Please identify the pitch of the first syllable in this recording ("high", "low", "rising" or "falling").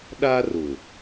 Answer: high